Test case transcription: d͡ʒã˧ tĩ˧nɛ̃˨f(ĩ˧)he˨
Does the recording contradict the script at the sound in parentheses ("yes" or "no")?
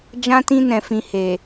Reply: yes